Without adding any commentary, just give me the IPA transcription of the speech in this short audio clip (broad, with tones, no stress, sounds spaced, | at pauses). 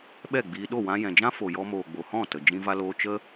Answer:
ɓ ɛ˦˨ ɡ͡b iː˧ ɗ o˦˨ w ã˧ j ɛ̃˨ d͡ʒ ã˦ f o˨ j ɔ˧ m oː˨ ɡ͡b o˨ h ɔ̃˦˨ t ə˨ d͡ʒ ĩ˧ v a˧ l oː˧ t͡ʃ ə˦